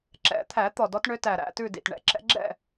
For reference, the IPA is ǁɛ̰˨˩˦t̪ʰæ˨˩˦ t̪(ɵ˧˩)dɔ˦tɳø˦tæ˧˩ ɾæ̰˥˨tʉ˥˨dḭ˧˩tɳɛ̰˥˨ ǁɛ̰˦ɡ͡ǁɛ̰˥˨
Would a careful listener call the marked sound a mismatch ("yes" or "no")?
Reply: yes